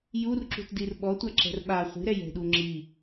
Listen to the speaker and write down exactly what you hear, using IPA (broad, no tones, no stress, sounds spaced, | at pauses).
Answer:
j u r ǁ ṳ t d i r ɓ ɔ tʷ a ǁ ɛ̤ r ɓ a χʷ i̤ ɾ ɛ j ɛ̤ ɗ u ŋ͡ǁ i